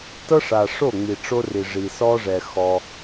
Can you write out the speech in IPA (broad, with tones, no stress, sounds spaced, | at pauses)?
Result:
t ɤ˦ ʂ a˨ ʂ o˦˨ ŋ͡m i˨ ʈ͡ʂ o˦ r i˨ ʐ i˨ s ɔ˦ ʐ ɛ˨ x ɔ˦